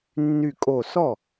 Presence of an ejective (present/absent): present